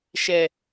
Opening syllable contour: low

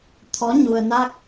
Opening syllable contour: rising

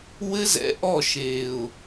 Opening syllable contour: high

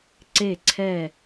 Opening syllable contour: falling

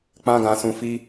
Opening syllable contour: high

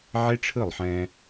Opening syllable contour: high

